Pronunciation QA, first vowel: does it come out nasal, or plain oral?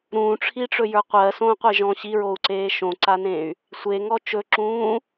nasal